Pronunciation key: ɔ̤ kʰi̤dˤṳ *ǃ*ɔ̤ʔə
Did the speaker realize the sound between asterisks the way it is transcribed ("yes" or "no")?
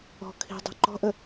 yes